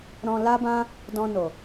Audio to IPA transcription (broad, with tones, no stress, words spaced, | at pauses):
ɾɔ̃˧ la˦bã˦ | dɔ̃˧no˨